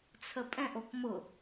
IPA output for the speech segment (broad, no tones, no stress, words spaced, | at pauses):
t͡sʰəpʼɛ̃ʔ okmʊ